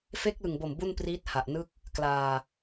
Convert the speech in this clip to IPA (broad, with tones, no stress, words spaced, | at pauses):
fe˦˥k̚lɯ˨˩ŋbo˨˩m bu˥˩npriː˦˥t̚ha˨˩ʔnɯ˥˩k̚ | klaː˧